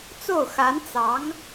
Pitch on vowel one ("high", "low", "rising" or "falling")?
falling